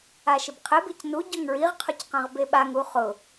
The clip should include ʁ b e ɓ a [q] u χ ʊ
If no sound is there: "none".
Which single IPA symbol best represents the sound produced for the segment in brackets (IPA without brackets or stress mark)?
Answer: ŋ